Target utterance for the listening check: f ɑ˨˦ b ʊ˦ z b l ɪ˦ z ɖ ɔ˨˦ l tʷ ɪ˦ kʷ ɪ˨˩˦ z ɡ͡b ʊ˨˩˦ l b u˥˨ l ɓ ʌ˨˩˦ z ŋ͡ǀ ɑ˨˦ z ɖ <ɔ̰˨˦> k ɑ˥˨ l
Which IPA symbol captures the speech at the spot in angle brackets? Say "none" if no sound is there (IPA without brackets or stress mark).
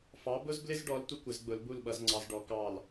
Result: ɔ˨˦